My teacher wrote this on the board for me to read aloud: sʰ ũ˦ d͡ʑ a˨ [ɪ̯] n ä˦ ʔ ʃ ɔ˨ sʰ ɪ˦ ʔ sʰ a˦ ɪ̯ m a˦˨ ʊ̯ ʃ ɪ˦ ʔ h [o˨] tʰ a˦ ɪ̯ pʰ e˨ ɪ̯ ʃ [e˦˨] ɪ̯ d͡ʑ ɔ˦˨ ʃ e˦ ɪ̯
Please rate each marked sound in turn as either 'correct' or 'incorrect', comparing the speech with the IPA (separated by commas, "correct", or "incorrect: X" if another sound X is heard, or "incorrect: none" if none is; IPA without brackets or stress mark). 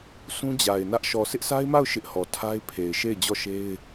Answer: correct, incorrect: ɔ˨, correct